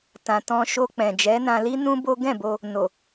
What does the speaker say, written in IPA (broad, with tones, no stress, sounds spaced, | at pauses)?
t ã˨ t ɔ̃˧ ʃ o˧ k͡p ɛ̃˨ d͡ʒ ɛ˨˦ n ã˧ l i˦ n ũ˦ b o˦ ɡ ɛ̃˦˨ b o˧ | n o˨